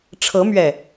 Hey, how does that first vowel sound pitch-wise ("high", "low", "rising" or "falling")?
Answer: rising